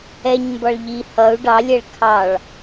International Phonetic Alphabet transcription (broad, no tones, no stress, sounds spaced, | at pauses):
ɛ ɲ m b ɒ ɭ ʎ i h ʌ u̯ ɖ ɑ lʲ ɛ ɭ kʰ ɑ ɭ